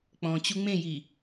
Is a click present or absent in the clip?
absent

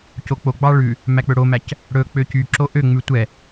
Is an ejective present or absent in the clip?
absent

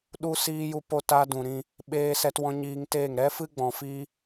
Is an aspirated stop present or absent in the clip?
absent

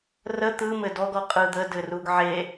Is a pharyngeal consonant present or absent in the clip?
present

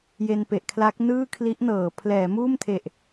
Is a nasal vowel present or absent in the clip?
absent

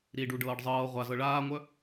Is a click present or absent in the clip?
absent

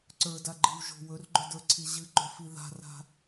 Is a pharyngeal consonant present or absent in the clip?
absent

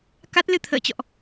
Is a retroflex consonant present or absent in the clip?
absent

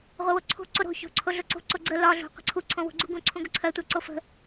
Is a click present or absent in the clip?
present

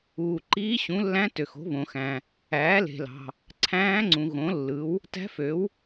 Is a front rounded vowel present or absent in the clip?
present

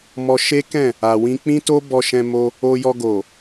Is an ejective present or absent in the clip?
absent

